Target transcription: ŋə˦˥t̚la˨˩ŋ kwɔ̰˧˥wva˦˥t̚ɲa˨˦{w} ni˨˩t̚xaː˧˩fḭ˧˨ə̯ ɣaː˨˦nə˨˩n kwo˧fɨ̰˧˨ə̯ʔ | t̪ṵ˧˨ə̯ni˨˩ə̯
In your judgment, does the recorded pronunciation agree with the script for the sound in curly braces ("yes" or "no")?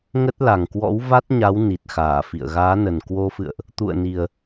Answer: yes